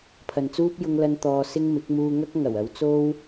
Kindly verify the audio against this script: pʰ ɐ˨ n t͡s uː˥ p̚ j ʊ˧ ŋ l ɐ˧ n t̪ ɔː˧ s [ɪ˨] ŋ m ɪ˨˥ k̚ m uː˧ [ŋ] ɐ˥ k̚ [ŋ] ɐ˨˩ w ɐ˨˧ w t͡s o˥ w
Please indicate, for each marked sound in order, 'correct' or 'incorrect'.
incorrect: ɪ˥, correct, correct

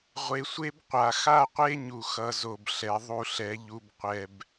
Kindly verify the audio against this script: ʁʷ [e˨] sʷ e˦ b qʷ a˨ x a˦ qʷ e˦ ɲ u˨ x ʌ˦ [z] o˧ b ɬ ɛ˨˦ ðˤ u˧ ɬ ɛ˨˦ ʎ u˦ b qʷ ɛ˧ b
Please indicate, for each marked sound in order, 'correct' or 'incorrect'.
correct, correct

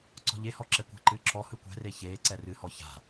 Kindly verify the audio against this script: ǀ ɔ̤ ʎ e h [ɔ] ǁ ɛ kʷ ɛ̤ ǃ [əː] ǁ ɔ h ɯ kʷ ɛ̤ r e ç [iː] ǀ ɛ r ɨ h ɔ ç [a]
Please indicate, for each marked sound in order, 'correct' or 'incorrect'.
correct, incorrect: ɨː, incorrect: eː, incorrect: a̤

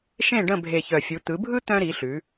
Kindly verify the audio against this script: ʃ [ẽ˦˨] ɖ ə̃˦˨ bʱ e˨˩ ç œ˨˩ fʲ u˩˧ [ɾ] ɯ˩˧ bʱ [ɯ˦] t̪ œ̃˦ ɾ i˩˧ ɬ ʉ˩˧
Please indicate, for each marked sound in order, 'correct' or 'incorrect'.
correct, incorrect: t̪, correct

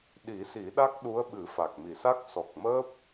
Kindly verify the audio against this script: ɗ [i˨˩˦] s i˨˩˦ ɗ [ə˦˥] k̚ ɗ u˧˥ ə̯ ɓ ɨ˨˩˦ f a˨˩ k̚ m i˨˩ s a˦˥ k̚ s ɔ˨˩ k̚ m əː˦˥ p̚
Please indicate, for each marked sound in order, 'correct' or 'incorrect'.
correct, incorrect: a˦˥

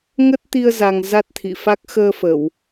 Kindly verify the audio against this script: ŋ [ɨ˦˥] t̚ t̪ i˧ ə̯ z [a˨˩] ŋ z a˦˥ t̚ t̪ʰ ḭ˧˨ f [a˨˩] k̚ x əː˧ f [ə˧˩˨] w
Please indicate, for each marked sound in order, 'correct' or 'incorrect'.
incorrect: ə˦˥, correct, incorrect: a˦˥, correct

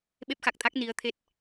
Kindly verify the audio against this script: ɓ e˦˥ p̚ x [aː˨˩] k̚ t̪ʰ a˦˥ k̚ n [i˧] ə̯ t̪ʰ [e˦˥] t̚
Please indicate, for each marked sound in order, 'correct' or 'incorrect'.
incorrect: a˨˩, incorrect: i˨˦, correct

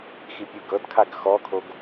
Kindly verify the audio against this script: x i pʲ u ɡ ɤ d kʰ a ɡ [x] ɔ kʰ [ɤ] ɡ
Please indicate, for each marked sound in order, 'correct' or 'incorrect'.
correct, incorrect: o

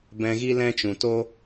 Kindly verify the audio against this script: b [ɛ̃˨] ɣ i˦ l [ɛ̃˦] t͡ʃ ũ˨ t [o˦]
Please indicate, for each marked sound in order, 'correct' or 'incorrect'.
incorrect: ɛ̃˧, correct, correct

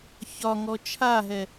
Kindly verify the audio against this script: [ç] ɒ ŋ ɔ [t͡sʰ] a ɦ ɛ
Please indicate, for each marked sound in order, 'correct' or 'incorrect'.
correct, incorrect: t͡ʃʰ

